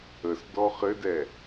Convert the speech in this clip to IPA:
ə s d ɔ χ ɘ d ɛ

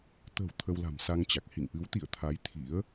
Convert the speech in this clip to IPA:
t̪ ə̤˨˩ w t̪ʰ ə˧ w l a̤˨˩ m s a˧ ŋ t͡ɕ a˨˩ k̚ h ḭ˧˨ ŋ ʔ ɨ˨˦ w t̪ ḭ˧˨ ə̯ t̪ʰ a˨˦ j t̪ʰ ḭ˧˥ ə̯

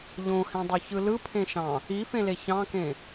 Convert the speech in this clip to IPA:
ʎ õ h ẽ dˤ y ç ɯ l ɯ pʰ ẽ ʃ ɑ̃ | i f ẽ l e ç ɑ̃ k ẽ

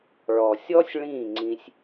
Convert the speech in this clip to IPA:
ɭ ɔ˨ sʲ ɔ˦ sʲ ɭ ĩː˦˨ ŋ͡ǀ ĩ˧ sʲ

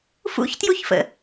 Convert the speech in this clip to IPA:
f ṵ ç t j u ç f ə̰

